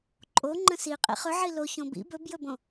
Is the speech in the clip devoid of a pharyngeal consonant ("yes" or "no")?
no